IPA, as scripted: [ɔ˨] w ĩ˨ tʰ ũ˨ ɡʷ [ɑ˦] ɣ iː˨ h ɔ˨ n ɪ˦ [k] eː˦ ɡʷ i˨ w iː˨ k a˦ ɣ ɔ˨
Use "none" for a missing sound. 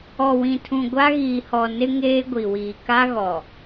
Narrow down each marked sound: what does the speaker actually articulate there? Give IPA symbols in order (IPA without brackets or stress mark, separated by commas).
ɔ˨, a˦, ŋ